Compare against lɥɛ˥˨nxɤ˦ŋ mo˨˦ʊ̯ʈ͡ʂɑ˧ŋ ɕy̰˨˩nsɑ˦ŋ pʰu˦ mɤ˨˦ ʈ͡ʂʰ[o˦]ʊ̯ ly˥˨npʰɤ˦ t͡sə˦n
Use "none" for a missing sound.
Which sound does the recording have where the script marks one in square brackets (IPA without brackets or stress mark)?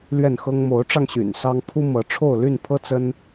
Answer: o˥˨